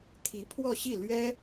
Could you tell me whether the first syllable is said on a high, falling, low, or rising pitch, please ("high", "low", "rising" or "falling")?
rising